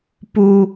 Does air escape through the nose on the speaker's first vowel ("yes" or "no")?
no